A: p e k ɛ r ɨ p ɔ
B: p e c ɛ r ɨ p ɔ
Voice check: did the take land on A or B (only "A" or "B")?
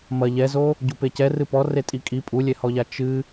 B